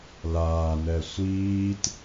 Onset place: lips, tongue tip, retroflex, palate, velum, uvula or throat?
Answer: tongue tip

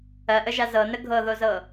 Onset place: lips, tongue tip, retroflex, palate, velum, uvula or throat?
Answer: throat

